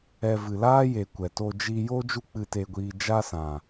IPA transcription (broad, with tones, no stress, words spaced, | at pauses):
ɛ˧ vɨ˨laː˦je˨ kʷɛ˨to˧ d͡ʒi˧jo˦ d͡ʒu˦k͡pɨ˧te˧ɡʷiː˧ d͡ʒa˦sã˨